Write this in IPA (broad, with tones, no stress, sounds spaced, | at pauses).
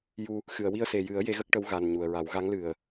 j u˧ | x ɨ˨˩˨ ə̯ w i˧ ə̯ s e˨˩ j ɨ˨˩˦ ə̯ j e˧˥ ɣ ə˦˥ k̚ ʈ ə˧˥ w ɣ a˨˩ n ɲ u˨˩ ə̯ ɹ a˨˩˦ w ɣ a˧˥ ŋ l ɨ˨˩ ə̯